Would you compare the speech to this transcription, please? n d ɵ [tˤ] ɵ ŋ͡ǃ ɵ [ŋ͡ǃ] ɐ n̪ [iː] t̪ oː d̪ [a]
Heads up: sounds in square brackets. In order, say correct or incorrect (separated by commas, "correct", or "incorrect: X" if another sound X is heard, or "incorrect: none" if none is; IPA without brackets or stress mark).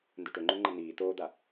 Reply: incorrect: ʈ, correct, correct, correct